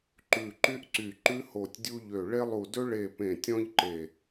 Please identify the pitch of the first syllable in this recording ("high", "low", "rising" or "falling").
low